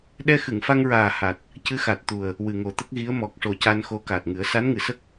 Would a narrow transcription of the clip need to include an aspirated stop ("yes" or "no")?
no